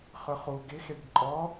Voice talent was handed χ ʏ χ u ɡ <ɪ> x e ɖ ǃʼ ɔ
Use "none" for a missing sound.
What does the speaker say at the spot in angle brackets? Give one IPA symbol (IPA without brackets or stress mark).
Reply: ɪ